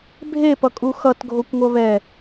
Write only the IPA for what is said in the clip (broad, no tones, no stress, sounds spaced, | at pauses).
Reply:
bʱ e p ʌ kʼ u x ʌ t ɡʱ o kʷ ŋʷ ʌ β ɛ